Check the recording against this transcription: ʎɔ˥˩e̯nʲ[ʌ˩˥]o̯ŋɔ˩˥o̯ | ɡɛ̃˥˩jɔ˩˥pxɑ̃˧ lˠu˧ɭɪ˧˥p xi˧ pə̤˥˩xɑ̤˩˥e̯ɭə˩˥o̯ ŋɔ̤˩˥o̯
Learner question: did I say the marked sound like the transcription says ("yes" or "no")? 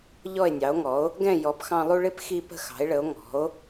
no